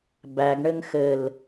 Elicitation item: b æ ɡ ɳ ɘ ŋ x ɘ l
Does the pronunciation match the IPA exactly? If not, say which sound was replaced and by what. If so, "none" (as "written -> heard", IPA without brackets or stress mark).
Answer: none